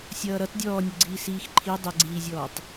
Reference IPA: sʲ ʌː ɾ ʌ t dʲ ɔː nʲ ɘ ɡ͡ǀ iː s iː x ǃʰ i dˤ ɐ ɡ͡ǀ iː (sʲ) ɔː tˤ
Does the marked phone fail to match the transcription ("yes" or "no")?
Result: yes